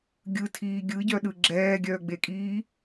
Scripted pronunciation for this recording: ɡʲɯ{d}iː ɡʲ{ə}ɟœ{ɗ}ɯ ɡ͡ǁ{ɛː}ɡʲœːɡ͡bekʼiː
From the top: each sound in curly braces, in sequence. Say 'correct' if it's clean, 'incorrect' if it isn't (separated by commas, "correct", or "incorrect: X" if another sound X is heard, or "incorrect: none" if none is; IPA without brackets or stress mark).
incorrect: tʰ, incorrect: ɯ, correct, correct